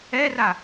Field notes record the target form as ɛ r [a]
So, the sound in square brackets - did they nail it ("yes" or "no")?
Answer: yes